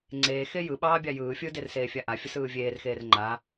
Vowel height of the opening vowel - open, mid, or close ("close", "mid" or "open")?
mid